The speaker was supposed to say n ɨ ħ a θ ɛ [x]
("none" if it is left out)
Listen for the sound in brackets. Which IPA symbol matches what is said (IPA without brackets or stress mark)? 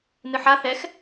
x